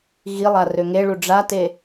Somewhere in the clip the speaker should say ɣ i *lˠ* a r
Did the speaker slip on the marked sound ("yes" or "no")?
no